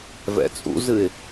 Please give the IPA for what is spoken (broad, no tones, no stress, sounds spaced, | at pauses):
v ɛ̰ t͡sʼ ṵ z ɨ ɪ̯